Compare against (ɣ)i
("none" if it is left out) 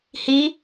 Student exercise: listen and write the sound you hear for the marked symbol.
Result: h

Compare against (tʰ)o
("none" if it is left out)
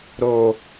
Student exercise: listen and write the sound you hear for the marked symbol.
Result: ɾ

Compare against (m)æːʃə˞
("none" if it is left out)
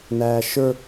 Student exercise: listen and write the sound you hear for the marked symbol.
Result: n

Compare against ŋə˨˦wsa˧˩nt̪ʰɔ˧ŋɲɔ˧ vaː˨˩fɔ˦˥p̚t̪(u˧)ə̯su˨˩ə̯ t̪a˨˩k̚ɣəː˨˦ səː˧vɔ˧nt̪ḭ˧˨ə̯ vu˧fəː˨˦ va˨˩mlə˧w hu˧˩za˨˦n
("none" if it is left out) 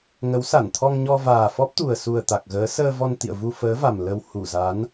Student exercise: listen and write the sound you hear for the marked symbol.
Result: u˨˩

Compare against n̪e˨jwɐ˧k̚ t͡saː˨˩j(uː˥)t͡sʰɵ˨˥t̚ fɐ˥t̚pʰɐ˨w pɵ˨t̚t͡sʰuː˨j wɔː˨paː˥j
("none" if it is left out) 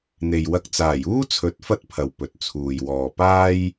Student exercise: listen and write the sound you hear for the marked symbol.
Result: uː˥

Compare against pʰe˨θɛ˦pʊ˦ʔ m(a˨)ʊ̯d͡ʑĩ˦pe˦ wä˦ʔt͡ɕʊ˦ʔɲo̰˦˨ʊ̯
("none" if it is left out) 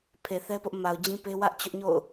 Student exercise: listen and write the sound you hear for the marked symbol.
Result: a˨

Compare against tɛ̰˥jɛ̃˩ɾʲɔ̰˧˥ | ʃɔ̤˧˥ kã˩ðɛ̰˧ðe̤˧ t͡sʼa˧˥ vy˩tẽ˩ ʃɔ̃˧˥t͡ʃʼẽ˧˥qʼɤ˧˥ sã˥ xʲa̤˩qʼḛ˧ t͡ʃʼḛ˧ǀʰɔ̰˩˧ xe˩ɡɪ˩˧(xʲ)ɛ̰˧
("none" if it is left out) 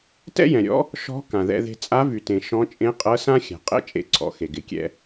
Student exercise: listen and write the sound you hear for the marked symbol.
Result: kʲ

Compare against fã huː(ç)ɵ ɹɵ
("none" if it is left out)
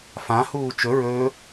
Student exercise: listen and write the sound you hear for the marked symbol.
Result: t͡ʃ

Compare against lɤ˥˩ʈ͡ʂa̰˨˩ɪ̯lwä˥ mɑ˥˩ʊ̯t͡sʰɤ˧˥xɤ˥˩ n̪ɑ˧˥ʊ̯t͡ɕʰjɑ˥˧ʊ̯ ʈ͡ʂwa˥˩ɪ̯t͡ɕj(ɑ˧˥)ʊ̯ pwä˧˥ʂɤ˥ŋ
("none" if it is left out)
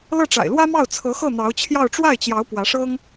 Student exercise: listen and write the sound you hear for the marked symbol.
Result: ɑ˧˥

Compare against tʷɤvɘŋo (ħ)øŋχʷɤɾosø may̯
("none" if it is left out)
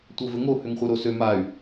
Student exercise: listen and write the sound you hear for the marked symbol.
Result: h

